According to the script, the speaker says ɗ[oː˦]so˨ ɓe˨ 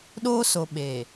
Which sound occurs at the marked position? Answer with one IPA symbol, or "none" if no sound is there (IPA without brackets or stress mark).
oː˦